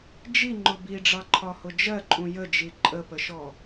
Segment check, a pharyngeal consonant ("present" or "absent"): absent